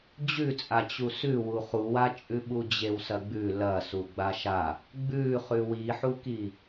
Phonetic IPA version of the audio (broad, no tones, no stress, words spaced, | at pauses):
d͡ʑʉt͡sʼa t͡ɕusʉwu χuwat͡ʃʼʉ ɓud͡ʑewsɐɡ͡bʉ lɐ suɡ͡baʃa | ɡ͡bʉχʉ wiħuki